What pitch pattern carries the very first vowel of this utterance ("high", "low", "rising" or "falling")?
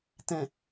low